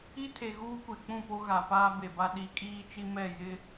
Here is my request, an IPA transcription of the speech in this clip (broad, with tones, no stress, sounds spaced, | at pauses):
i˦ tʰ e˨ ɣ uː˦ kʷ e˨ k͡p ũ˦˨ p o˦ ɣ a˨ p aː˦ b e˨ b a˦ ɗ i˨˦ kʼ iː˦ t͡ʃ i˦ m ɛ˦˨ j ɪ˦